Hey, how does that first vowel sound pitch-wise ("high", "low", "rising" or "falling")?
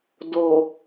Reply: low